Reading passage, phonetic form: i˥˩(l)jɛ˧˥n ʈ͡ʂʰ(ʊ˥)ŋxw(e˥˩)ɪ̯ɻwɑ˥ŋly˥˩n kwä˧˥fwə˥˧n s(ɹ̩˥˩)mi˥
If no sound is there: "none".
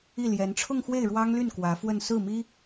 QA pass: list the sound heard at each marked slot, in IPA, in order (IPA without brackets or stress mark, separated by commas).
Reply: l, ʊ˥˧, e˥˩, ɹ̩˥˩